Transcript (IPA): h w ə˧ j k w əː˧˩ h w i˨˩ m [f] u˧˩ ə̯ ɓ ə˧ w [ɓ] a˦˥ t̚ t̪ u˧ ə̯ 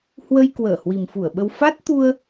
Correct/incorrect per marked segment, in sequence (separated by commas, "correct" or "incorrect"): correct, incorrect